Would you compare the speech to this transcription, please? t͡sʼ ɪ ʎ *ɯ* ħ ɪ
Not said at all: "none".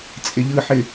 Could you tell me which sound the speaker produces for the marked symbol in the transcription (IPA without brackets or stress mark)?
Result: ɯ